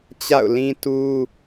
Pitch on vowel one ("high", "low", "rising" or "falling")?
falling